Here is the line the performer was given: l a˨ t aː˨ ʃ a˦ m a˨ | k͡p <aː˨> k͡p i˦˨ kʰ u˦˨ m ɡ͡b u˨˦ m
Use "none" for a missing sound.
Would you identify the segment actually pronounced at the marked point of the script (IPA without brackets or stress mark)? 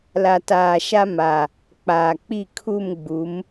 aː˨